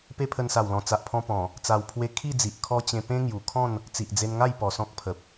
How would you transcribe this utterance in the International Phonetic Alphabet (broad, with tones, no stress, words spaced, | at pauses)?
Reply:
pe˦pʰə˧nsa˨˩wlɔ̃˨˩ t͡sa˨ʔpʰɔ̃˧pɔ̃˨˩ | t͡sa˧wpʰwe˦ kʰi˥˧d͡zi˨ʔ kʰɔ˦t͡ɕẽ˧ pẽ˦ŋju˨˩ kʰɔ̃˥˧n | t͡si˨ʔd͡ze˧nŋa˥˧j pɔ˨˩sɔ̃˦k̚pʰə˨p̚